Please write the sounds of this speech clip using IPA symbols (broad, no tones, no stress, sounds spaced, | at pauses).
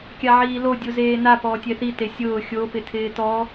kʲ a ʕ iː l o dʲ u z eː n a p ɔː tʲ ɛ θ i t e sʲ ʊː xʲ o p ɪ tʰ ɪː t ɔ